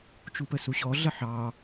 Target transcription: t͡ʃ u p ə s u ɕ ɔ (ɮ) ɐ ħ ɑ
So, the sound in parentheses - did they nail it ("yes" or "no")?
yes